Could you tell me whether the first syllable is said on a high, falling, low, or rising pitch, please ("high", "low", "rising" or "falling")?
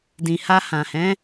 low